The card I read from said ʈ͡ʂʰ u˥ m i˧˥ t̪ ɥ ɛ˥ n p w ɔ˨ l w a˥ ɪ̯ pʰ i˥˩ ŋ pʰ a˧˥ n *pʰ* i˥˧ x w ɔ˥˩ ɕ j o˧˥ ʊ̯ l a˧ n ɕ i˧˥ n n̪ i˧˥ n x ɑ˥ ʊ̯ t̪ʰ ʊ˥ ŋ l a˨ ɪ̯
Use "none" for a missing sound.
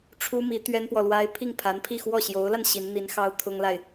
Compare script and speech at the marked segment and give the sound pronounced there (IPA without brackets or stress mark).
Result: pʰ